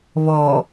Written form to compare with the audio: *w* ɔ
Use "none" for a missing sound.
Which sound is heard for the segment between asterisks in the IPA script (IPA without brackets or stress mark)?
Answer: β